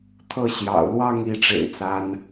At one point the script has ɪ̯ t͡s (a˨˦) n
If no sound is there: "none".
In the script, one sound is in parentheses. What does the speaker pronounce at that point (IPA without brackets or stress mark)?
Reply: a˨˦